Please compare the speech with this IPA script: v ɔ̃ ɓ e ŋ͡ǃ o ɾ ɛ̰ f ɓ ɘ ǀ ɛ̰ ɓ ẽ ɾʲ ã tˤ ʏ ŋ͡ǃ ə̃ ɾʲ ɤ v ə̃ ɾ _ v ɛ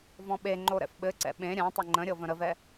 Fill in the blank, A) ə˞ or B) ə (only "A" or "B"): B